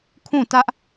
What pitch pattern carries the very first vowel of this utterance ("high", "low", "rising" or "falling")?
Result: falling